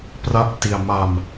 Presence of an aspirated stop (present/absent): absent